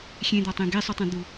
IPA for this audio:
xʲẽd̪ɒtˤẽ ɡesˤutˤẽ d̪u

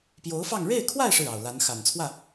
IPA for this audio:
pjo˧˥ʊ̯fɑ˥˧ŋ ɻe˥˧ɪ̯kʰwa˥˧ɪ̯ ʂɻ̩˥˩ɑ˨˩ʊ̯la˧˥n xa˨˩nt͡sʰwä˥˩

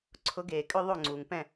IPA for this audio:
ǀʰʊ˨˥ ɡeː˩kʼʏ˥˧ ðˤo˥˩ŋ͡ǀuː˩ŋpɛ̃˥˩

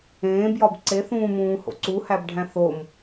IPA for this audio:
ẽːbjɒb ǀeθũːmũːho̰ ǀuhæbɖʱæ̃ θom

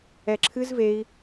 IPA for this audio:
ɛǁʰɨz vei̯

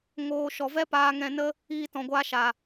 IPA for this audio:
ŋoː˨ ʃɔ˨vɛ˦ paː˧ŋɛ̃˧nə˦ | iː˧tɔ̃˨ɡʷa˧ʃa˨

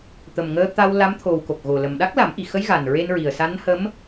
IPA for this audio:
t̪ə˨˩mŋəː˧t̪a˧w la˧˥m t̪ʰo˨˩w ko˨˩k̚ɣo˨˩lə˨˩m ɗa˦˥k̚la˨˩˦mʔi˨˩xə˧˥j ɣa˨˩n ɹe˧nɹi˨˩ə̯ sa˧˥nhə˧˥m

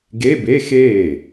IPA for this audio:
ɡe˧˥˧be˧˥˧xeː˥˩

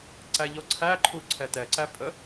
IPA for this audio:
ǀæʎɔǀʰæǃʰu ǀʰɛtɛǀæ pʼə

